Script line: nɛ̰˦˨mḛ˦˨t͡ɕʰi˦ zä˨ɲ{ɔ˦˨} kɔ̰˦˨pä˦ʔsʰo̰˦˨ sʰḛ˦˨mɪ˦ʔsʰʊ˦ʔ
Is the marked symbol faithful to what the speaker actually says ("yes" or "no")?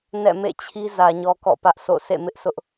no